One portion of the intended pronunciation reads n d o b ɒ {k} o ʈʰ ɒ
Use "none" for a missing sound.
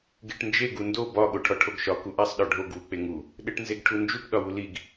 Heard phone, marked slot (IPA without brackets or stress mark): ɠ